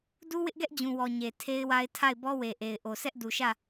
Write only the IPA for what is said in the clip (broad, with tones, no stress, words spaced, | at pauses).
du˦wɪ˦ʔɡɛ˦ʔ d͡ʑũ˨wɔ˨ ɲe˨tʰe˦ɪ̯wa˦ɪ̯ tʰa˦˨ɪ̯bɔ˦we˨ʔe˨ɪ̯ ʔo˨sɛ˦ʔdu˨ʃä˦˨